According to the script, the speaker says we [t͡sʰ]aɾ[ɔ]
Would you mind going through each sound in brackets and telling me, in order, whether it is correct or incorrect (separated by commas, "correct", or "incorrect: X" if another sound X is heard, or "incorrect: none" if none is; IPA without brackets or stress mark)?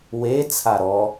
correct, correct